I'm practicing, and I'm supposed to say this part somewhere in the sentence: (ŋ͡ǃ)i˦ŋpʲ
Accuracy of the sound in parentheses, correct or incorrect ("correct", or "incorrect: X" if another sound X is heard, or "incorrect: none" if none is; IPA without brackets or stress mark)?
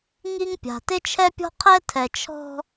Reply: incorrect: ŋ